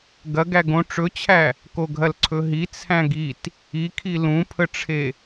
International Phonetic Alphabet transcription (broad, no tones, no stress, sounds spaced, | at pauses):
ɡ ɐ ɡ æ ɡ õ ʈ͡ʂ ɵ t͡ɕʰ æ | k o ɡʱ ɐ l ǀʰ ɵ ɦ i t͡sʰ æ̃ ɡ i t | i kʰ i l ũ pʰ ə ʈ͡ʂʰ e